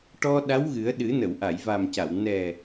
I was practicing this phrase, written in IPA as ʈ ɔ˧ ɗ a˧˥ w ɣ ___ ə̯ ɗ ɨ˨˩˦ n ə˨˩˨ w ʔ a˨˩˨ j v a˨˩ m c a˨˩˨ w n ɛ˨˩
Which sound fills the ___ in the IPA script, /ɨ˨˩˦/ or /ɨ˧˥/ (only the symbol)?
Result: ɨ˨˩˦